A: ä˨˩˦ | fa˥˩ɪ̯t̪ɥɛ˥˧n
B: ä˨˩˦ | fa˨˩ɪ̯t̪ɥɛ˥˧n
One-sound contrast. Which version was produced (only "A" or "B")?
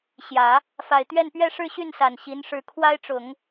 B